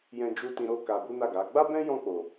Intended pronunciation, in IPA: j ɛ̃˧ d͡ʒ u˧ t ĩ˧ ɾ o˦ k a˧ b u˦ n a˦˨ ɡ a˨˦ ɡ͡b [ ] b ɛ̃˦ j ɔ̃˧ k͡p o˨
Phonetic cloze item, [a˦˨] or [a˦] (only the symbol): a˦